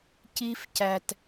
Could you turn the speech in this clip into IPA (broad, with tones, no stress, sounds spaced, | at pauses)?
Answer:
c i˦ f c æ˨ t